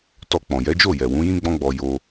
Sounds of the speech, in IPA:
t ɔ˧ k͡p ɔ̃˨ j ɛ˨˦ d͡ʒ o˦˨ j ɛ˨ w ũ˨˦ j ĩ˦ ɡ͡b ɔ̃˦ ɡ͡b ɔ˧ j o˧

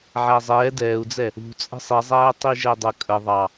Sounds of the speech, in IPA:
ʕ æ zˤ ɛː d ɛː u̯ d͡z ɛ | ṳ t͡sʼ ə̤ sˤ i zˤ æː tˤ i ʒ ɛ dˤ ə kʼ ə ðˤ ɑ

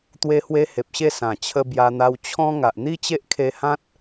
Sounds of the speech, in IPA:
t̪ w e˧ h w e˧ h e˨ p̚ ɕ e˥˧ s ã˨˩ t͡ɕʰ ə˧ b j a˧ n̪ a˧ w t͡ɕʰ ɔ̃˦ ŋ a˨ ʔ n̪ i˦ t͡ɕ e˦ ʔ kʰ e˧ h ã˦ t̚

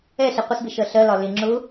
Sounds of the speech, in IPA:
ɛ ɬ i qʷ ə s b ɪ ʃ ɜ ɬ ɜ l ɒ l ɪ ŋ͡ǁ ʊ

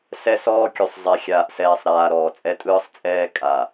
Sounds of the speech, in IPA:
s ɛ˦ s ɔː˦ kʲ u˨ sˤ zˤ ɛ˨ xʲ aː˨ ʔ s ɛː˨ sˤ ɾ aː˨ ɾ ɔː˨ t͡sʼ ɛ˦ tʼ ɯː˦ sˤ t͡sʼ ɛː˦ kʼ a˨

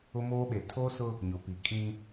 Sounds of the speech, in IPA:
ʊ˦ m oː˦ ɓ e˨ tʰ oː˦ s ʊ˦ | ɲ ʊ˨ p i˨ kʼ ĩ˦

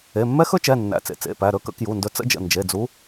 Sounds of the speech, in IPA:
e˩˧˩ mː ɛ˦˥ x ɵ˦˥ t͡ʃ ɛ˩˧˩ nː æ̰˩˧˩ t͡s ḛ˩˧˩ t͡s ḛ˩˧˩ p æ˩˧˩ ɾ ɵ˩˧˩ k ə̰˨˦ k j u˩˧˩ n d ɵ˨˦ t͡s ə̰˦˥ d͡ʒ ə̰˩˧˩ n d͡ʒ e˩˧˩ d͡z u˨˦

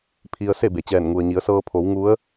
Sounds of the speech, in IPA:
pʰ i˧ ə̯ s e˥˨ b e˩ t͡ɕ ɛː˧˩ n ŋ u˩ ə̯ ɲ i˩˧ ə̯ s ɤː˧ pʰ o˩˧ w ŋ u˧˥ ə̯

